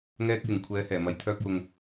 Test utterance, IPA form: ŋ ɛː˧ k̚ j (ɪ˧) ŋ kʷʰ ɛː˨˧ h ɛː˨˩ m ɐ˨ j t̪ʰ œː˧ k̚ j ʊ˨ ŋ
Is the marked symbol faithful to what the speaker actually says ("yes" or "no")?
no